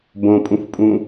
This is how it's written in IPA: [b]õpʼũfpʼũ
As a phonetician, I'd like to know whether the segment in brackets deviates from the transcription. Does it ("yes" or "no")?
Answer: no